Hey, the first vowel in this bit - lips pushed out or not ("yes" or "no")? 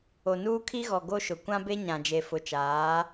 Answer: yes